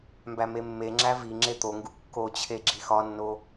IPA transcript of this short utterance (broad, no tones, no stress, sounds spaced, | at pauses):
m b æ m e mː e ŋ͡ǁ æ v i ŋ͡ǁ e t̪ o ŋ ɡ u kː o t͡ɕʰ e ɡ͡ǁ i x ɒ nː o